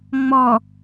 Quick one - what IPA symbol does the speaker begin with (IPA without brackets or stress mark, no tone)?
ŋ͡m